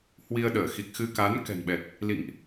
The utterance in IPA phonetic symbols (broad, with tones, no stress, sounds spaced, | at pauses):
h w i˧ ə̯ ɗ əː˧˩ x i˨˩ k̚ x ɨ˧ k a˨˦ n k ɛ̤˨˩ n ɓ ɛ˨˩ t̚ | l ḭ˧˨ ŋ ʔ